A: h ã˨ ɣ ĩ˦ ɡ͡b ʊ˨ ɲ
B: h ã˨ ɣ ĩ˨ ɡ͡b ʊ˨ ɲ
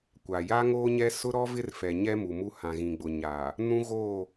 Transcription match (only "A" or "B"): B